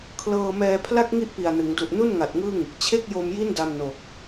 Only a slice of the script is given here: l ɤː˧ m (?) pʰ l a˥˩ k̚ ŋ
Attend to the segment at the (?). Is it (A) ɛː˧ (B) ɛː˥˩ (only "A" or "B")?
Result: A